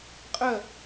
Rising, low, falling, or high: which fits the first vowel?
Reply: falling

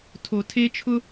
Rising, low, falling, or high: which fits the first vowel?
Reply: low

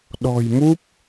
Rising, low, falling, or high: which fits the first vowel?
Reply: low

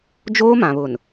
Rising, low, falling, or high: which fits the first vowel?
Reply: high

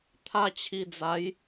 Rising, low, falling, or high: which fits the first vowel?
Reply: falling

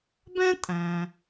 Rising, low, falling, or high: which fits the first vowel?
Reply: high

